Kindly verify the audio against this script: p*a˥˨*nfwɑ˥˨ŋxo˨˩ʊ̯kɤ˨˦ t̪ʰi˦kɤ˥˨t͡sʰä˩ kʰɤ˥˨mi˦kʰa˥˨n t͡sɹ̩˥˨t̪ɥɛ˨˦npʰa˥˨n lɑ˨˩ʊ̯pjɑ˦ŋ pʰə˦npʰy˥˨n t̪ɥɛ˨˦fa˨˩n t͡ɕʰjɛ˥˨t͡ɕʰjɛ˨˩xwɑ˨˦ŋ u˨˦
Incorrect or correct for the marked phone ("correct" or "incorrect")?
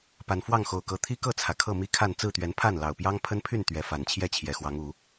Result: incorrect